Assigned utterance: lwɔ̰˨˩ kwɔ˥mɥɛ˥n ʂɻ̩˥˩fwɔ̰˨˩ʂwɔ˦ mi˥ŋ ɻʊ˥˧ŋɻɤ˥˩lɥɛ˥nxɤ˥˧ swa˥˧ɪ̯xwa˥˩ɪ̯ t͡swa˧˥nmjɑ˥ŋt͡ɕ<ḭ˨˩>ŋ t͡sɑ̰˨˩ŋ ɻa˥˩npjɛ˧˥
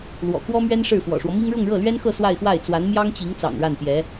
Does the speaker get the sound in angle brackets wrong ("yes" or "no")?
yes